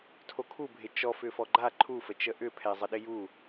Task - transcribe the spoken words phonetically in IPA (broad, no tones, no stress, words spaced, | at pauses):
tʰokʰubʱɪ t͡ʃɔfʏfɔ ɡ͡ǃa ǃʰufət͡ʃə ʔʏpʰɛzˤə ɗɪju